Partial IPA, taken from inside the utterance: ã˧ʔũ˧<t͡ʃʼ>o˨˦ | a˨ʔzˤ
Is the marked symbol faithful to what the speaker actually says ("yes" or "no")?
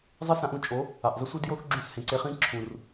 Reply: yes